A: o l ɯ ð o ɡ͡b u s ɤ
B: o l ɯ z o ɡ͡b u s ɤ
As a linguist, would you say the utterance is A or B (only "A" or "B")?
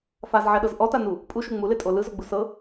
B